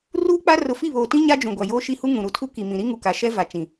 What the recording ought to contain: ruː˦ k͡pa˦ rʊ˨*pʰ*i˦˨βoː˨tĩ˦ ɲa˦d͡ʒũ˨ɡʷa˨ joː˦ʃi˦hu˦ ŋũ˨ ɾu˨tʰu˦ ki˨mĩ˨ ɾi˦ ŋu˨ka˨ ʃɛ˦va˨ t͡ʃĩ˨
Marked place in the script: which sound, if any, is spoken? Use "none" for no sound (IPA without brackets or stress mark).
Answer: f